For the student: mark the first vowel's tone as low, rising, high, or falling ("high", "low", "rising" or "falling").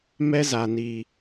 high